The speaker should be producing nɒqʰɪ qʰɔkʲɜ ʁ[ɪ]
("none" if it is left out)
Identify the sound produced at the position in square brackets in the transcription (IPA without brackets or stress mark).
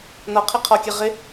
ɪ